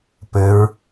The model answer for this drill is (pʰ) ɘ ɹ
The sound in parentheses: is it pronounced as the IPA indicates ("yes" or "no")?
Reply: no